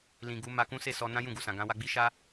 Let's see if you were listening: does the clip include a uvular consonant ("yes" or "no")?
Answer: no